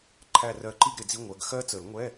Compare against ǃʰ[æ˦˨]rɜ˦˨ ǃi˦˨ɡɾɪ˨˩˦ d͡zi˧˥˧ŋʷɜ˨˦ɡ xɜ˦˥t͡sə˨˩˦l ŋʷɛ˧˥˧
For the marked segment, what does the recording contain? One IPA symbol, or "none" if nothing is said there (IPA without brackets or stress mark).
æ˦˨